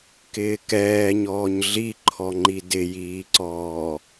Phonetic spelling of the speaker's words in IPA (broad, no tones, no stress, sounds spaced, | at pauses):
k ɪː k ɛː ɲ ɔː ɲ ɮ i ǃʰ ɔ ŋ͡ǃ i d ɪ j iː ǀ ɔː